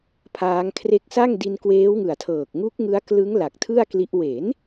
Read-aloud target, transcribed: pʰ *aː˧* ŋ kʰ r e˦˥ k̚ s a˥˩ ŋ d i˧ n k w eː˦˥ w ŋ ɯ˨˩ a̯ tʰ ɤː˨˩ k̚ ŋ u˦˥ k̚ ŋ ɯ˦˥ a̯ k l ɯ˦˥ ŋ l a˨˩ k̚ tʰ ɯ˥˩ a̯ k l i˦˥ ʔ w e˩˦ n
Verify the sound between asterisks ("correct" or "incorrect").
incorrect